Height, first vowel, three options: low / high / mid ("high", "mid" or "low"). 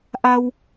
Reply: low